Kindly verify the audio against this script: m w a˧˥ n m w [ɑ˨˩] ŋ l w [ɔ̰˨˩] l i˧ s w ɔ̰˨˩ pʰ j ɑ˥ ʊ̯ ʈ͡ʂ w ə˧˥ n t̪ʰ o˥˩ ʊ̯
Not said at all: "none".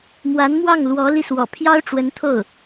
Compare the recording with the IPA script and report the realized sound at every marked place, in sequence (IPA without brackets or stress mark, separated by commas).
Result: ɑ˥˩, ɔ˧˥